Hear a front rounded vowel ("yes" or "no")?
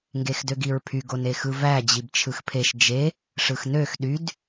yes